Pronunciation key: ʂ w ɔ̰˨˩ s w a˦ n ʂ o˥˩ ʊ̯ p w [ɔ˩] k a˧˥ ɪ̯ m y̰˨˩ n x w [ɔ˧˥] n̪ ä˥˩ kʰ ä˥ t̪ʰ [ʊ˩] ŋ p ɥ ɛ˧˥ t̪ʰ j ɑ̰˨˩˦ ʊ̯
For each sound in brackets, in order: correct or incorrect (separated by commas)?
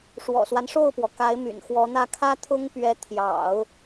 correct, correct, incorrect